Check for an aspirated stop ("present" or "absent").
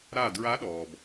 absent